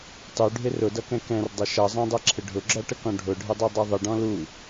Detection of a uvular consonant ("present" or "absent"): absent